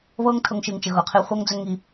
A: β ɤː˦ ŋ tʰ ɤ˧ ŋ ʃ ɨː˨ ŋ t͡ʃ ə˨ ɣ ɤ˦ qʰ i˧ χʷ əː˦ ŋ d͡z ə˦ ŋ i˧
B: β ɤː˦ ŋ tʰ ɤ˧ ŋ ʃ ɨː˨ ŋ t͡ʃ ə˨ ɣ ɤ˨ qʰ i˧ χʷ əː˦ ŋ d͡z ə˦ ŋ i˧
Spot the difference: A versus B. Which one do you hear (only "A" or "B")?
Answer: B